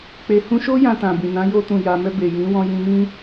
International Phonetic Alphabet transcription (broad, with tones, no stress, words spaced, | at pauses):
k͡pe˧ hũ˧ʃo˦ jã˧tã˨bĩ˨nã˨˦ jo˧tũ˨ja˨mɛ˧ be˨jĩ˨˦wɔ̃˧ jĩ˧mĩ˦